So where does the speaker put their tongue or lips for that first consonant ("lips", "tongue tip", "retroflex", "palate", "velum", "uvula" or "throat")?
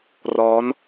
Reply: tongue tip